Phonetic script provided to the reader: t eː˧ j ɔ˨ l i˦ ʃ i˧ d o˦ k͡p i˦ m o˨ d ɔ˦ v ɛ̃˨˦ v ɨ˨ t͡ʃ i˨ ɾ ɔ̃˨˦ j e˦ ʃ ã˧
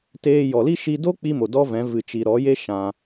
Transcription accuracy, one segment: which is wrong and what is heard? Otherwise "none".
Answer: ɔ̃˨˦ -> ɔ˨˦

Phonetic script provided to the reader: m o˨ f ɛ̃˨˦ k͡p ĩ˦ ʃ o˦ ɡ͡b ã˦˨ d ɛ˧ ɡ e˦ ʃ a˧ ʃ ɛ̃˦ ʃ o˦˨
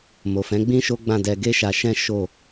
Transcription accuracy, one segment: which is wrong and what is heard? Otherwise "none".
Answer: k͡p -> ɡ͡b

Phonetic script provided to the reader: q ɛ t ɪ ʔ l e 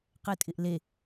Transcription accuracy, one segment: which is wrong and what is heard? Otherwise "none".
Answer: t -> tʼ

